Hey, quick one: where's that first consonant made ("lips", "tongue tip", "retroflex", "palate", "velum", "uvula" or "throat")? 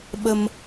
lips